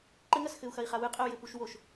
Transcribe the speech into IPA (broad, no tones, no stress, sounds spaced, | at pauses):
ǃ ɘ ŋ ɐ s x ɘ u̯ x ɐ i̯ χ a w ɨ qʼ ɘ u̯ j ɘ p u ʃ w o ʃ